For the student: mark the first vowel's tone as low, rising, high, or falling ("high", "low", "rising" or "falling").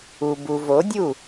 low